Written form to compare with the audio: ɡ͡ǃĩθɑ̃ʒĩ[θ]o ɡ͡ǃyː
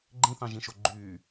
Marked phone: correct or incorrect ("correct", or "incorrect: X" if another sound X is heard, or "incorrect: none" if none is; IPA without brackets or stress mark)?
incorrect: ʃ